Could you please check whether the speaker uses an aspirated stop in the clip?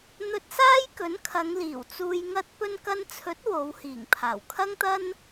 yes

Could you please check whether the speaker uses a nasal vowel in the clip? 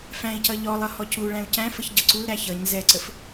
yes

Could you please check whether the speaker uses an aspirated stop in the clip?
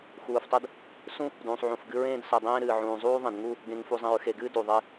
no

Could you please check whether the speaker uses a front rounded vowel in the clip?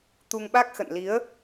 no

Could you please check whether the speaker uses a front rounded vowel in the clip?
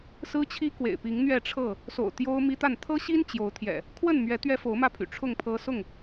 yes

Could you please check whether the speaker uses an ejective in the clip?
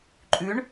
yes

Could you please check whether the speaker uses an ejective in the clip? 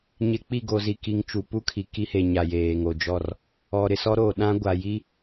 no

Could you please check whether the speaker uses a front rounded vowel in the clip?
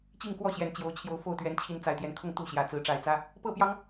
no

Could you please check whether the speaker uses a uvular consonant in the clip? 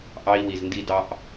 no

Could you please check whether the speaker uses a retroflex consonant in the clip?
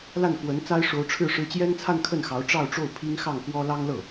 yes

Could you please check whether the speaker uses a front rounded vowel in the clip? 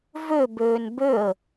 yes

